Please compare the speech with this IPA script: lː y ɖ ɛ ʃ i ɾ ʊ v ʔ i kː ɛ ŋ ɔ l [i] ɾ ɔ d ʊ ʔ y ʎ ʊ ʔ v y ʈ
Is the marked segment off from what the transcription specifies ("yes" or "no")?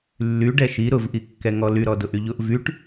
yes